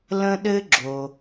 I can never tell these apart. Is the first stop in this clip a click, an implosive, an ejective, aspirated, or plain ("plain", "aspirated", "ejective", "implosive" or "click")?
implosive